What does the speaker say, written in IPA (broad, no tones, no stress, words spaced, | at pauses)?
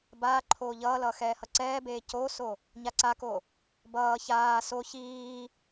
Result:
baː ǃʰoːʎʌːlʌː xɛːhʌǀɛːbeː coːso | ɲaǀako | bʌː çaː so çiː